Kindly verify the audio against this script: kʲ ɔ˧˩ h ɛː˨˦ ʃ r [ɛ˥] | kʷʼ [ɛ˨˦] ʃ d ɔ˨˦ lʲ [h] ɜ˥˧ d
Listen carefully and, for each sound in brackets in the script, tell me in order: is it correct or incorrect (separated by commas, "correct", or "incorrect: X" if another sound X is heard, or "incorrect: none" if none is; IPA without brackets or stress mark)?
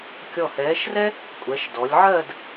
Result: correct, correct, incorrect: ʕ